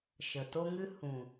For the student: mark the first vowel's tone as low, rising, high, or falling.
low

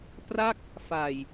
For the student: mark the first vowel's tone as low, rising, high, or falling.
falling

